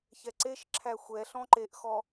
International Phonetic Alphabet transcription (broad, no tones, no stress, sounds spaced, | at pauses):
ç ɛ ǀ e ʃ ǁʰ æ xʷ ɛ ɬ ɔ̃ ǃ e ʔ x ɔ